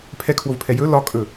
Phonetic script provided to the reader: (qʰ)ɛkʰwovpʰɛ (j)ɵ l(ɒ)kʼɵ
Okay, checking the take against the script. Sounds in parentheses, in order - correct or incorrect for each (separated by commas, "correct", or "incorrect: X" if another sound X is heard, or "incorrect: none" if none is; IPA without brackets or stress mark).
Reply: incorrect: pʰ, correct, correct